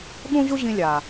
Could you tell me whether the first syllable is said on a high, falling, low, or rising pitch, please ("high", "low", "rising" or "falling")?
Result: high